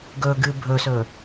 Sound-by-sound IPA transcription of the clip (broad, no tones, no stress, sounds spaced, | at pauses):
ɡ ɵ ɡ ɨ bʱ ɵ s ɵ